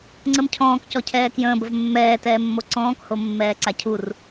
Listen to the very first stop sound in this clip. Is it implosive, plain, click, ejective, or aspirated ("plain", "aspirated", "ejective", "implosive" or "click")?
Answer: click